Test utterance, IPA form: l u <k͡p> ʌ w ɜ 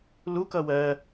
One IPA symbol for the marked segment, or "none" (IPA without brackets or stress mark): k